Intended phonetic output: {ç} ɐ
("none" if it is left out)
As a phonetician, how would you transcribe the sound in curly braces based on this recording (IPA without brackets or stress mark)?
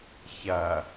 ç